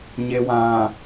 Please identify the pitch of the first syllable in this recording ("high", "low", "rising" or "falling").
low